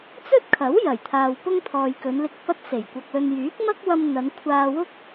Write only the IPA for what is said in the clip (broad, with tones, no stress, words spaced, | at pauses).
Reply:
t͡sɵ˥t̚kʰɐ˨˥w jɐ˨˩jt̪ʰaː˨w pʊ˥ŋt̪ʰɔː˨jkɵ˨˧nlɪ˧k̚ pɐ˥t̚se˨˩jkʷɐ˧k̚lɵ˧n jyː˨˥k̚mɐ˥k̚ wɐ˧mn̪ɐ˨˧n kʷʰaː˧wʊ˥k̚